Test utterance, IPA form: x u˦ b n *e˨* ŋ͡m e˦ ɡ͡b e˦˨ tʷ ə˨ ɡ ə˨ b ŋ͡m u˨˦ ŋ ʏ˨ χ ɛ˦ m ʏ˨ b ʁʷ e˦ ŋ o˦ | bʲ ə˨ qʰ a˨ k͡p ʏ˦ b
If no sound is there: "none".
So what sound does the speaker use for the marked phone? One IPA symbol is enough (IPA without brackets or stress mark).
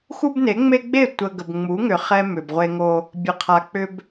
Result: e˨˦